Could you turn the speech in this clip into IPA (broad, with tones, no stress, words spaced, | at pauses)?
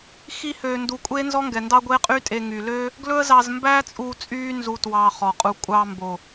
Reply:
xi˦høː˧ndu˧ kʷʼeː˦nzɔ˦ŋɡɛ˨ndɑ˦ ɡʷeː˦qʼyː˦tʼe˧ ŋyː˨løː˦ | ɡlɵ˦ə̯zɑ˧zmbæː˦t͡sʼuː˧ t͡sʼyː˦nzu˧ twɑː˧χɔ˨qʼu˧ kʷʼɑː˧mbo˨